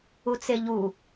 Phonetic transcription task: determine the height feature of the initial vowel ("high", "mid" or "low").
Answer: high